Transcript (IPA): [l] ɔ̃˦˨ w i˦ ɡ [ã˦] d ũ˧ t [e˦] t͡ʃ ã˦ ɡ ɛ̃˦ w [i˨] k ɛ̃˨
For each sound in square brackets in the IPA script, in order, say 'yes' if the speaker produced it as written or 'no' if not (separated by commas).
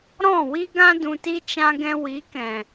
no, yes, no, no